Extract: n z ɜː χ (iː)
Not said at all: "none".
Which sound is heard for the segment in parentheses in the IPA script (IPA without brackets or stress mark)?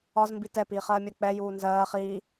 iː